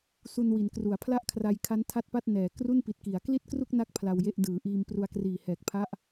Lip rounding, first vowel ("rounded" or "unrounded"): rounded